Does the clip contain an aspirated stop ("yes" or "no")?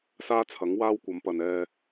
yes